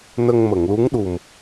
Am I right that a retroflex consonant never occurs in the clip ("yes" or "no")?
yes